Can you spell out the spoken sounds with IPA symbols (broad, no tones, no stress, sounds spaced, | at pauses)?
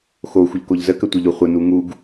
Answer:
x o xʷ ə ʎ k o ʎ z ə k ə tʷ ə ʎ o χʷ ə n u ŋ u ɡ